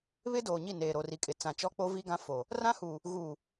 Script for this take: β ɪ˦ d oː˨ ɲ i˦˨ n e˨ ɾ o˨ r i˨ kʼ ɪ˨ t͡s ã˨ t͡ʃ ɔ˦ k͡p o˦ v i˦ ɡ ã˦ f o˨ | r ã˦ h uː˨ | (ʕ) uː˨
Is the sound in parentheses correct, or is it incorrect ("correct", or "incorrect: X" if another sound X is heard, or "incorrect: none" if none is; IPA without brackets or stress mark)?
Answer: incorrect: ɣ